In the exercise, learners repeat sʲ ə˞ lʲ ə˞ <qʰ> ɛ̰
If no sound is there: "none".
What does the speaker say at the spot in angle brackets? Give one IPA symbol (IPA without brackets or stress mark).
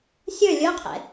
qʰ